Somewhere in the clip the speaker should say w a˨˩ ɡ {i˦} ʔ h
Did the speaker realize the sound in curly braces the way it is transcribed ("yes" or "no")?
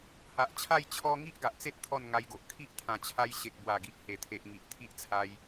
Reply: no